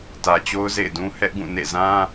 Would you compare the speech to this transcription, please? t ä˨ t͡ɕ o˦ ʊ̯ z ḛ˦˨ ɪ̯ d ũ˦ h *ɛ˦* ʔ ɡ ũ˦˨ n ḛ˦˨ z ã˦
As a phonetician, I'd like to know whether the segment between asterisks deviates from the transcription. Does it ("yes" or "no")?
no